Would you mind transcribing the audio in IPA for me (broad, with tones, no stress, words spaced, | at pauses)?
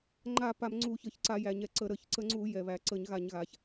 ŋ͡ǃa˧˩˧ pa˧˩˧mŋ͡ǀu˧˩˧çə˧˩˧çǀa˧˩˧ jæ˨˩ɲɛ˨˩ǀə˧˩˧ɾə˧˩˧ç ǀə˧˩˧ ŋ͡ǀu˧˩˧ jɛ˨˩βæ˨˩ ǀə˧˩˧ɲɣa˧˩˧ɲɣa˨˩ç